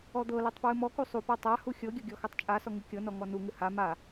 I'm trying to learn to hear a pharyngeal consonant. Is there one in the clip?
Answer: no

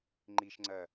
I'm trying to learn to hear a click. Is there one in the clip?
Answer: yes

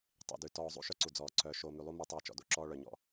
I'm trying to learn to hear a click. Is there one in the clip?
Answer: yes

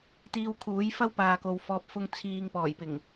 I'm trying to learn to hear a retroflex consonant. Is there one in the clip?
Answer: no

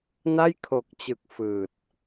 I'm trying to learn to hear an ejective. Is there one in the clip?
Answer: no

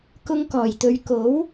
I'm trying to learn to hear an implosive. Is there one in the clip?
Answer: no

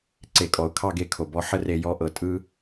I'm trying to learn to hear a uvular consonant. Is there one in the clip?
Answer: no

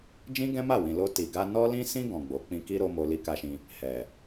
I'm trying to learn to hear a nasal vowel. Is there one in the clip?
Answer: yes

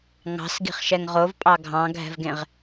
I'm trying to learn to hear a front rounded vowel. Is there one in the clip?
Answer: no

